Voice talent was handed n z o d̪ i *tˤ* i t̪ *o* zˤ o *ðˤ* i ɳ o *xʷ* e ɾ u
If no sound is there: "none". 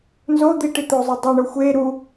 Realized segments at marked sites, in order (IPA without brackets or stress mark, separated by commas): ʈ, o, dˤ, xʷ